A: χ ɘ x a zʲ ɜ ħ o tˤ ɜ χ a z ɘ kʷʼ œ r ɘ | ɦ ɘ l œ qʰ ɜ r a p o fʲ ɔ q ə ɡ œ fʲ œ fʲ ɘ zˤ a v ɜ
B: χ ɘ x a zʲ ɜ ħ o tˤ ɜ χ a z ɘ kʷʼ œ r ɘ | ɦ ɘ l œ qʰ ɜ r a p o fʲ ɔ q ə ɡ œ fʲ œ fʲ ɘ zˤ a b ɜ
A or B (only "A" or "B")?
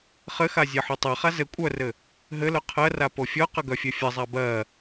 B